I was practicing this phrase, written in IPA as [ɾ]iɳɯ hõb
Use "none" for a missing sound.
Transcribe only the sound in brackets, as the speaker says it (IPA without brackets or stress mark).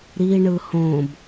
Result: ɾ